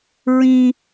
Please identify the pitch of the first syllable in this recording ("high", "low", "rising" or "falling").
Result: high